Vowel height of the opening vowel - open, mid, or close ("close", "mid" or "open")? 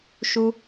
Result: close